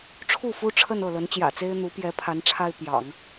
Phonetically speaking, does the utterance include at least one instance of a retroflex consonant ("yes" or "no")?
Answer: yes